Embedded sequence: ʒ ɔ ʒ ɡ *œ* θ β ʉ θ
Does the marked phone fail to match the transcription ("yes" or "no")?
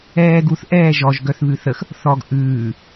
no